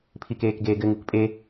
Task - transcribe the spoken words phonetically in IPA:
pʰ i k eː k ɡ eː ɡ ɘ ŋ u k pʼ e

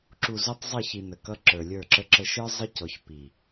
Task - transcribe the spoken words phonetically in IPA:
ǁ u˨ z u˦ tˤ zˤ ə˦˨ ç i˨ n ə˨ k ʌ˦ ǁ ə˞˨ lʲ ə˞˦˨ ǁ ə˨ ǁ ə˨ ʃ ə˞˦ zˤ ə˦ c ɔ˨ ç p i˨

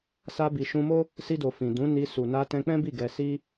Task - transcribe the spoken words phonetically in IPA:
s a˧ b i˨ ʃ ũ˧ m o˦ | s i˧ d o˨ f ĩ˨ d ũ˨˦ n i˧ s u˨ n a˧ t ɛ̃˧ k͡p ɛ̃˦ b i˦˨ ɡ ɛ˧ s i˦

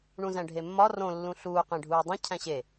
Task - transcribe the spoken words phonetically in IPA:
ɳ ũ z æ̃ ɖʱ e mː ɒ r õ lː ũ ɬ uː q ẽ ɖʱ uː dˤ õ cʰ æ̃ ɕ e

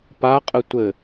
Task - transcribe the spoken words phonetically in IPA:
p a qʼ ɘ tʷ ɘ

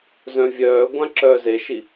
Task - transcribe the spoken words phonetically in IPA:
z œ̃ vʲ œː ɡʷ ã ǁ œː z e ʃ i

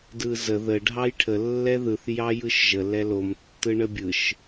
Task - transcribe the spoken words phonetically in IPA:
d ɯ z ə ð ə ɖʱ ɑ j ʈʰ ə lː ɛ ð ɯ θ j ɑ j ɯ ʃ ʒ ə l ɛ l o m tː ɯ ɳ ə bʲ ɯ ʃ

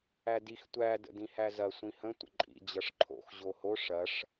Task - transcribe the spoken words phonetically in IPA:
æ d i x tʷ æ d ə̰ d ĩ h æ z ɐ sʷ ĩ h ə̃ tʷ ə̰ ǃʼ ḭ d͡ʑ ʌ ʂ ǃʰ o̰ x ʑ o h o ʂ ɐ ʂ

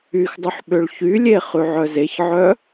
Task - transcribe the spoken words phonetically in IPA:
y x dˤ ʉ ħ ɓ ø ɭ ç y lʲ e χ ʉ ʕ œ z e ç ʕ œ

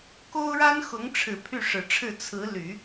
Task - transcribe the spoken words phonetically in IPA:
k o˥ ʊ̯ ɻ a˥ n x ʊ˧˥ ŋ ʈ͡ʂʰ ɻ̩˨˩ pʰ y˥˩ ʂ ɻ̩˨˩ ʈ͡ʂʰ ɻ̩˥˩ t͡sʰ ɹ̩˧˥ l y˨˩˦

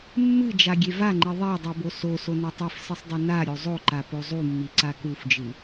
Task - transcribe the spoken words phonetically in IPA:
mː ɨ d͡ʒ a ɡʲ e v a ŋ͡ǃ i ðˤ e dˤ u b o s o s o n u tˤ e f s ɨ sˤ dˤ u n a ɾʲ o zˤ o ǃ a p o zˤ u mː i ǀ a k u f d͡ʒ ɨ

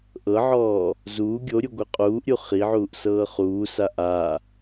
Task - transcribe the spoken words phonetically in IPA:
ʔ ɤ ʕ ɔː | z uː ɡʲ o ɾʲ u ɡʷ ɛ qʼ uː ʔ ɾʲ u χ i ʕ uː ʔ s ɤː χ uː s a ʔ a

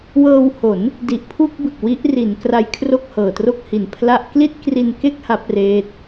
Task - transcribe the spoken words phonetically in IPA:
w ɤː˧ w h o˩˦ n | d i˨˩ ʔ pʰ u˥˩ k̚ b ɯ˨˩ k̚ w i˦˥ ʔ r i˩˦ n k r a˧ j kʰ r o˥˩ k̚ h ɤː˨˩ t r o˥˩ k̚ h i˨˩ n pʰ l a˥˩ ʔ k l i˥˩ t̚ k r i˧ n k e˥˩ k̚ h a˦˥ p̚ r eː˦˥ t̚

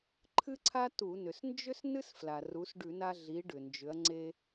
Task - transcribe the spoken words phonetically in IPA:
ǃʰ ɨ˥ ǀʰ a˥ t u˧˩˧ n ʏ˩ s n d͡ʒ ʏ˥ s n ɨ˥ s f l a˩ r u˩˧ s ɖ ʉ˧˩˧ n a˧ ɮ i˩˧ ɖ ʏ˩ n d͡ʒ ʏ˩˧ ɐ̯ ŋ͡ǀ e˧

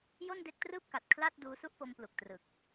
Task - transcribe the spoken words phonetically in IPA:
j o˥˩ n d e˦˥ k̚ t r ɯː˥˩ p̚ k a˨˩ t̚ kʰ l a˥˩ t̚ d uː˦˥ s u˥˩ ʔ p o˦˥ m p l u˨˩ k̚ t r ɯ˨˩ k̚

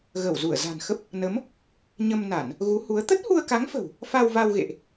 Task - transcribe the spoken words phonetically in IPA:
ɣ ə˧˩ w z u˧˩ ə̯ z a̤˨˩ n x ə˦˥ p̚ | n ə˨˦ m | ɲ ə˧ m n a˧˩˨ n | ɣ u˨˦ h u˨˦ ə̯ t̪ ə˦˥ t̚ h u˧ ə̯ k a˨˦ ŋ f ə̤˨˩ w | f a˧ w v a˧ w ɣ ḛ˧˨ ʔ

